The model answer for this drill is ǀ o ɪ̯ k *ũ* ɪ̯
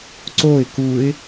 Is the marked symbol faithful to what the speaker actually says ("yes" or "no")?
no